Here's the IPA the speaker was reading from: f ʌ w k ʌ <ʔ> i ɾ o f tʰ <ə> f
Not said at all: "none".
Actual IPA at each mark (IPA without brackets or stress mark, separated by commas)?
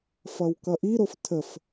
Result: ʔ, ə